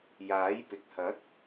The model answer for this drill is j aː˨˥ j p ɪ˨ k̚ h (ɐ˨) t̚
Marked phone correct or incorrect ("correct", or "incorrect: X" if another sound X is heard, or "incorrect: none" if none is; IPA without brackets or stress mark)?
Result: incorrect: ɐ˨˥